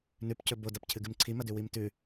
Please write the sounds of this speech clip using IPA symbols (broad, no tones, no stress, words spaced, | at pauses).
nʉpcɵ bodɐpcʰɨɡɨm ǀʰimɐdʉ wimtʉ